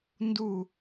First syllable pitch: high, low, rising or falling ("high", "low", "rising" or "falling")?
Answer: falling